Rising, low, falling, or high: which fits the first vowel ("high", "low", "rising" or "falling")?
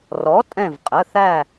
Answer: rising